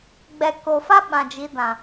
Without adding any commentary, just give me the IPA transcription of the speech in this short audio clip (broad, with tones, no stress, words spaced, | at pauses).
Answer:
ɡ͡bɛ˨ ko˨ fa˦ ɓã˨d͡ʒi˨˦ dã˨